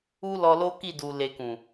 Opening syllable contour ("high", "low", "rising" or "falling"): high